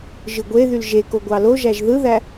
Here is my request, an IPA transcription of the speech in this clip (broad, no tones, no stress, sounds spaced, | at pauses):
ʒ ɯ ɡʷ e ð y l ʒ e k o ɡʷ ɑ l o ʒ æ ʒ ð ɯ ð æ